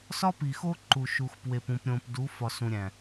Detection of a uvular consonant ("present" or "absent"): absent